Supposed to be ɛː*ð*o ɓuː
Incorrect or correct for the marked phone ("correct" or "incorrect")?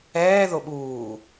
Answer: correct